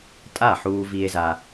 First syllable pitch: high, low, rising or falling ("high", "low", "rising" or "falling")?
falling